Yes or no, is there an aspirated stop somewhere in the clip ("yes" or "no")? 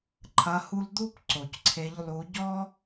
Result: yes